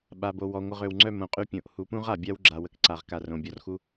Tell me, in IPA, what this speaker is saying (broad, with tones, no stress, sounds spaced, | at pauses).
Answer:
ɓ a˨ b o˨ w ɔ˨ ŋʷ ə˨ ʁ ø˨ w ŋ͡ǀ œ˦˨ m õ˨ qʼ y˦ pʲ õ˨ ʔ h u˨˦ p ũ˦ ʁ a˨ bʲ a˦ w ɡ͡ǁ a˨ w ə˨ k ǀ a˨ ʁ k a˨ r õ˨ bʲ ɔ˨ r x u˦